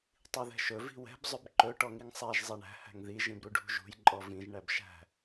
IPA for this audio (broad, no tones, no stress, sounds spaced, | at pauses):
tˤ i ð ɛ̤ ʃ ɵ v i̤ w ɛ̤ b zˤ ʏ b ǃ ɵ ʈ ɔ ŋ i ŋ sˤ æ ʒ zˤ ɛ ɳ æ̤ h æ̤ ŋ ð i ʒ ĩ b ɾ u ɖʱ ṳ ʒ ṳ j ǃʼ ɔ v ĩ ʒ ɳ æ b ʃ æ̤